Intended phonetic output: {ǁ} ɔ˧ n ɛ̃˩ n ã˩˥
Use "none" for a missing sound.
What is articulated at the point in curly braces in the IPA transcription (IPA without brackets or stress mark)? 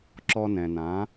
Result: ǁ